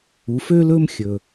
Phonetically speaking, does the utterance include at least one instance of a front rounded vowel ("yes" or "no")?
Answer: yes